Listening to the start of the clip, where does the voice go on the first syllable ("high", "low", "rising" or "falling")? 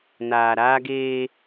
low